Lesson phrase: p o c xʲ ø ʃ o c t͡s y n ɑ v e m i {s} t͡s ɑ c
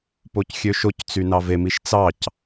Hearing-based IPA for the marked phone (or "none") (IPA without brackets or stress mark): ʃ